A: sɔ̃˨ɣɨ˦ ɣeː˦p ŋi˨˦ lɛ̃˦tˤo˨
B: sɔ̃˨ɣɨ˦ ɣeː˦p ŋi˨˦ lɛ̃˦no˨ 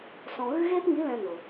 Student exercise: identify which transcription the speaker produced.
B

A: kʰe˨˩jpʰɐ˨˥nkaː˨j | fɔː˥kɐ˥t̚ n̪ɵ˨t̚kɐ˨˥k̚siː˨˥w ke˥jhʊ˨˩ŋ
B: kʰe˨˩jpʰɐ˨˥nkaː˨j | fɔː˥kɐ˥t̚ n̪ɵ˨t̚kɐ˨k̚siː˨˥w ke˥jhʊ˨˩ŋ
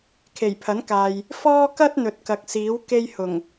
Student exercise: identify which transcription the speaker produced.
B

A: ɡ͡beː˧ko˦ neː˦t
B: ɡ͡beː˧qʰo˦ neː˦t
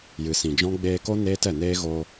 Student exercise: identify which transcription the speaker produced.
A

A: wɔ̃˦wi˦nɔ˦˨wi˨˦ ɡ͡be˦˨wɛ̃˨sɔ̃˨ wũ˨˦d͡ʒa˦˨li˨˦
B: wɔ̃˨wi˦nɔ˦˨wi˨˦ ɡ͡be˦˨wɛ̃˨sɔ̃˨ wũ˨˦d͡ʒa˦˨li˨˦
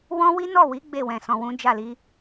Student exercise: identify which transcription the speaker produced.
A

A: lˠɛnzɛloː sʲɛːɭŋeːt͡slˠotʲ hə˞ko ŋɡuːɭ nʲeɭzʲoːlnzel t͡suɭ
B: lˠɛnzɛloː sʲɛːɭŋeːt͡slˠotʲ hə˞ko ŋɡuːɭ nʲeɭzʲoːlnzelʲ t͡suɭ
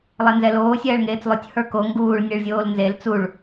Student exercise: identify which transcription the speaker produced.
A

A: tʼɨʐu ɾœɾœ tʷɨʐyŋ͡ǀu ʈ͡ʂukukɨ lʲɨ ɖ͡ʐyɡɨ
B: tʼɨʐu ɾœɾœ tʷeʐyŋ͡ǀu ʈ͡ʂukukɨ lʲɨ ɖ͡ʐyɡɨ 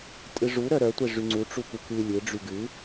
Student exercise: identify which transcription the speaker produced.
B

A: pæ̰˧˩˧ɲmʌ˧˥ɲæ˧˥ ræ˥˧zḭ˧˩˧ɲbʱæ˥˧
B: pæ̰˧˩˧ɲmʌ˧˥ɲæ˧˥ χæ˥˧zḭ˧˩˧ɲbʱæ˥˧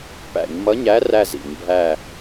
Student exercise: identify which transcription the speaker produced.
A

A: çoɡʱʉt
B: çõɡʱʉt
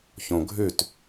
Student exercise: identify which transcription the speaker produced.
B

